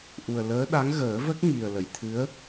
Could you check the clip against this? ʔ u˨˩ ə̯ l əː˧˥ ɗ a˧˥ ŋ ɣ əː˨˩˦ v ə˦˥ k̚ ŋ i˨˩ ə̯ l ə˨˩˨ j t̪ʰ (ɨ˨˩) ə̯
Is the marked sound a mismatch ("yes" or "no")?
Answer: yes